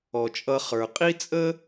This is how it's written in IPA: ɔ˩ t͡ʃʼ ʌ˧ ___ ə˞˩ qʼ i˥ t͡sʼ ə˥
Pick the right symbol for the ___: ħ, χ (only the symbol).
χ